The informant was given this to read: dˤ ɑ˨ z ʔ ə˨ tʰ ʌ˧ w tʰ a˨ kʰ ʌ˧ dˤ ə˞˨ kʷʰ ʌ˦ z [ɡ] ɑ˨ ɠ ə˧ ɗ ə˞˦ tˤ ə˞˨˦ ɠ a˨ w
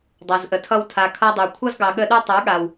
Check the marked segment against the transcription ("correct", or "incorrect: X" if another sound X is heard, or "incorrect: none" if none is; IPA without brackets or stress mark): correct